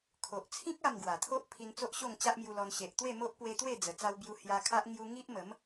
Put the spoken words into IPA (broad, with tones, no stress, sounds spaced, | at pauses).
kʰ o˨ ʔ t͡sʰ ĩ˦ k̚ a˥˧ m ɡ w a˨˩ t̪ʰ o˦ ʔ pʰ i˧ n t͡s o˦ ʔ ɕ o˥˧ ŋ t͡ɕ a˦ ʔ m j u˧ l ɔ˧ n ɕ e˨ ʔ t̪ w e˥˧ m o˦ ʔ p w e˧ t̪ w e˥˧ d͡z ə˨˩ t͡s a˧ w b j u˧ h j a˧ kʰ a˦ ʔ ŋ j u˧ ŋ i˦ ʔ m ə˨˦ m